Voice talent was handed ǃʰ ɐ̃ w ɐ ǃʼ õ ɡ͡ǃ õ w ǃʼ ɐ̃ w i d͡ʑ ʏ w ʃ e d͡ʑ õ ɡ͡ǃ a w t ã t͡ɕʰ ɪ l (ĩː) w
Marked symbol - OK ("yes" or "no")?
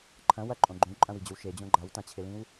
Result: no